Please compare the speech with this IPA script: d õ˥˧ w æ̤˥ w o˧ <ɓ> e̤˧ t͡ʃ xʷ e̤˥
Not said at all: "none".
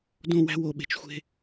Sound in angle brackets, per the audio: ɓ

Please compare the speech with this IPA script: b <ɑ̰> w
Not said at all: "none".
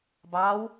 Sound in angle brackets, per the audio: ɑ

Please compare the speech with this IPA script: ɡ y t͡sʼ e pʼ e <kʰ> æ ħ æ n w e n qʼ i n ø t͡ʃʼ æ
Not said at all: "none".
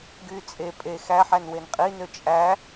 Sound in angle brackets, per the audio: x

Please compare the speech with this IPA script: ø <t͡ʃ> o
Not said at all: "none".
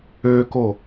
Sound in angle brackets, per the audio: k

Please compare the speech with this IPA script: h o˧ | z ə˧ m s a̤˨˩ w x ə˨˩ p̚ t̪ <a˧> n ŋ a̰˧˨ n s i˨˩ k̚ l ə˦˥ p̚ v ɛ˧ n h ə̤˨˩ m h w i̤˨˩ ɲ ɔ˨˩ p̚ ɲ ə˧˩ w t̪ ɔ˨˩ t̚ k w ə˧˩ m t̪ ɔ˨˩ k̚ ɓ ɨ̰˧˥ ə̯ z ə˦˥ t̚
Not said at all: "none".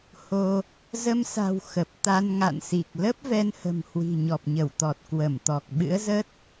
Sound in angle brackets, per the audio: a˧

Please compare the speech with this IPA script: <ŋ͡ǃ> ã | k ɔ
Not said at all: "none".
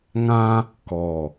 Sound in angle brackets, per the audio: ŋ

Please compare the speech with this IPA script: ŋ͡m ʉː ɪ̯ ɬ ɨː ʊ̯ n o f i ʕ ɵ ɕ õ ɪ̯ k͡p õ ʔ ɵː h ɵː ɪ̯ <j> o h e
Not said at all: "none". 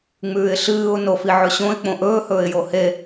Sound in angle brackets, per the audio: j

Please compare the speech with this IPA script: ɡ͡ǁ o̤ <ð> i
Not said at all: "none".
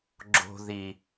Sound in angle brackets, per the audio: ð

